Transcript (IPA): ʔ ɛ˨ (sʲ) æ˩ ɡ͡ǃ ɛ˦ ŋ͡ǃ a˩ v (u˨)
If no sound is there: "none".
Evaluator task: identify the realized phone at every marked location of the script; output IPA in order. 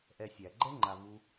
sʲ, u˨

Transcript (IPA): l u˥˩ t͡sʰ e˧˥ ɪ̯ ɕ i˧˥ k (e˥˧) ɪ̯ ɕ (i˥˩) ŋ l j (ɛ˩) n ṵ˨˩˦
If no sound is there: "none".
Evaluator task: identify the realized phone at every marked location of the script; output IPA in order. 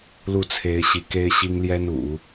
e˥, i˥, ɛ˥

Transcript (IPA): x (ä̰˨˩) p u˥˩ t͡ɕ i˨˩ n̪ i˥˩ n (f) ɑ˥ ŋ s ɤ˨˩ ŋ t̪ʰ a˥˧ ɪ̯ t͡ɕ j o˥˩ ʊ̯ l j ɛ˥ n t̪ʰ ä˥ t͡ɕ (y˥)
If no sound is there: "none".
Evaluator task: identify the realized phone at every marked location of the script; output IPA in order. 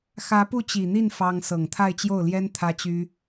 ä˧˥, f, y˥

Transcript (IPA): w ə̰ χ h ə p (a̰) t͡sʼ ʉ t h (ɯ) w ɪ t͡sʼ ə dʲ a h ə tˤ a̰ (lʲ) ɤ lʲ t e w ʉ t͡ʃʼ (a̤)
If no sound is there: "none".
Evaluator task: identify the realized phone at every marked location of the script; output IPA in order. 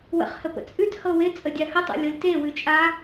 ə̰, ɤ, lʲ, a

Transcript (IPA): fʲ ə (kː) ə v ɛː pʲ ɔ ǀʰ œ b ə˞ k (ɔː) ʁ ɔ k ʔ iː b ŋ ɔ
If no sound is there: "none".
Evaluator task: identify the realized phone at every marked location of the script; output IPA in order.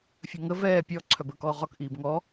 ŋ, ɔː

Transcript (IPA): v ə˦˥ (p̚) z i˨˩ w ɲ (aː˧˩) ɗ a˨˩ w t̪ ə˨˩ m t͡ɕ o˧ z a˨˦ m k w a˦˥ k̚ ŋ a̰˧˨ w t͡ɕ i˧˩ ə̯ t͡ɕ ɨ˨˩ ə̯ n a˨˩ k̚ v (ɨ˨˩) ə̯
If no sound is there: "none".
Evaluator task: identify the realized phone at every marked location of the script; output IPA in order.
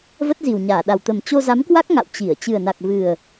t̚, aː˧˩, ɨ˨˩

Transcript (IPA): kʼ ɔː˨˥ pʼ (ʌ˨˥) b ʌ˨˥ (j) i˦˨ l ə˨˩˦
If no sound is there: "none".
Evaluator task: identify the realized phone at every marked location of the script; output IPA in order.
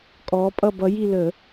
ʌ˦˨, j

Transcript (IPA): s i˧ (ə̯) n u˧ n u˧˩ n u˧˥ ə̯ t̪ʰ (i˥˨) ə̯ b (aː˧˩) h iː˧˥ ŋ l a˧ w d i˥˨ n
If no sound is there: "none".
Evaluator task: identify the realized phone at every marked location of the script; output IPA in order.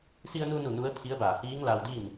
ə̯, i˧˥, aː˧˩

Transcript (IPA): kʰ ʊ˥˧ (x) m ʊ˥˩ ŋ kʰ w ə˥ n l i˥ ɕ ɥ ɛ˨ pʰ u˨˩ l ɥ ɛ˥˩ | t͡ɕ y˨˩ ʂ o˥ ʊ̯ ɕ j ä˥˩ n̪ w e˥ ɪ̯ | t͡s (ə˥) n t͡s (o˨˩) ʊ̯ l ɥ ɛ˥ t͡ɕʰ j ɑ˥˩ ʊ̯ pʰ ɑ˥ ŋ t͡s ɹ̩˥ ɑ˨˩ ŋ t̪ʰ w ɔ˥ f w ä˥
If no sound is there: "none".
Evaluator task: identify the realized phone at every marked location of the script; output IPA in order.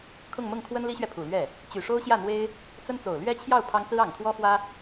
ŋ, ə˥, o˨˩

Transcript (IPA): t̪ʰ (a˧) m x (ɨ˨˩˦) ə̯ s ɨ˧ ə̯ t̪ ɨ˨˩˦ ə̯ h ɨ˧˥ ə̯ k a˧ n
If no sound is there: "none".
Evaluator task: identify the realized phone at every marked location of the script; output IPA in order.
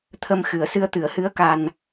ə˧, ɨ˨˩˦

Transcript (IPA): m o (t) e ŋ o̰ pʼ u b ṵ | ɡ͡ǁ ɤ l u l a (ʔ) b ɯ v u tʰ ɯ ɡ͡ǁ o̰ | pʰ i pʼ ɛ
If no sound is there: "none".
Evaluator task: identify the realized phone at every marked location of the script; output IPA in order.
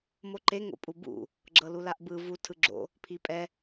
ǃ, ʔ

